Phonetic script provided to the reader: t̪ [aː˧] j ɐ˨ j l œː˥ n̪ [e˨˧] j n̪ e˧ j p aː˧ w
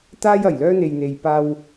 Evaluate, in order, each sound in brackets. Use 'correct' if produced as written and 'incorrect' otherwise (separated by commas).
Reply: incorrect, incorrect